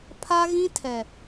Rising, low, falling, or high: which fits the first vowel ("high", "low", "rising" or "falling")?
high